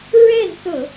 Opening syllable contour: falling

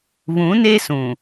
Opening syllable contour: rising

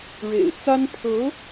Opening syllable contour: low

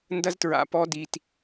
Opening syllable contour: high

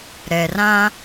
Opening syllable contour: low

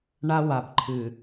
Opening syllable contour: high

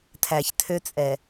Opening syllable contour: low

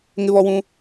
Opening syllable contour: high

